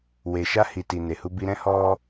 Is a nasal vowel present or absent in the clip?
present